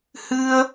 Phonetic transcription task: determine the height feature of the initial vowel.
high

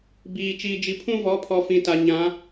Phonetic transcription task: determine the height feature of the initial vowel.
high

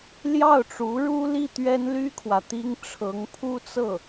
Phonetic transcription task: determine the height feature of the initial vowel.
low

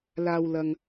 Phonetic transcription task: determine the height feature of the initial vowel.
low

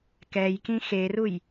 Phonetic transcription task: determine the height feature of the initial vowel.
mid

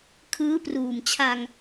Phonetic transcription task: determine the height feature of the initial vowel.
high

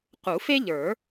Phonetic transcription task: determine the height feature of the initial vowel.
high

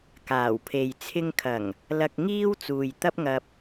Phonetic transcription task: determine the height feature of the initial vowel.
low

